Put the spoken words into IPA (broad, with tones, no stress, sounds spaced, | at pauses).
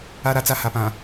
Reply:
a˦ ɾ a˦ t͡s a˦ h a˨ p ã˨